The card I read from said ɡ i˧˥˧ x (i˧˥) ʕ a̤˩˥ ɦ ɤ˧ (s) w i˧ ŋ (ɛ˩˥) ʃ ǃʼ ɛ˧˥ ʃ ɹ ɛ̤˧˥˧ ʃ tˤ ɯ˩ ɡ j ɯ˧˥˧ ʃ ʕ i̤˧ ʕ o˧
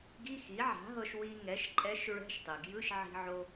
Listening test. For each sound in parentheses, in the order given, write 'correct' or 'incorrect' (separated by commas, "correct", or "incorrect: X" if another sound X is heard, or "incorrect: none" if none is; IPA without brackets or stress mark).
incorrect: i˩˥, incorrect: ʃ, correct